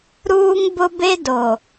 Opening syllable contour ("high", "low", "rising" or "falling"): high